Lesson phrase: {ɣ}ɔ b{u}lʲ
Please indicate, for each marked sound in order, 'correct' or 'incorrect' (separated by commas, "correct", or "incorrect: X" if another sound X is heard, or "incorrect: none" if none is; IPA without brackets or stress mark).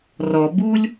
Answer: incorrect: r, correct